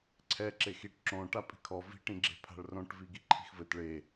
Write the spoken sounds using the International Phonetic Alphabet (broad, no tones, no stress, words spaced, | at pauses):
ǀʰɛ ǁexiʈ ǁõ ʈapʼi̤kʰɔ vi̤ ʈĩɡ͡ǁe̤pʰa̤ɭrõʈ viɡiǃʰi̤xvɘt ɭe